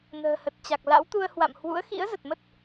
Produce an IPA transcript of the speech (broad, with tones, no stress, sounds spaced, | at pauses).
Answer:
n ə̤ː˨˩ h ə˨˩ t̚ t͡ɕ a˨˩ k̚ l a̰˧˥ w t̪ u˧ ə̯ h w a̰˧˨ m h w ṵ˧˥ ə̯ x ḭ˧˥ ə̯ z ə˨˩ t̚ m ə˦˥ t̚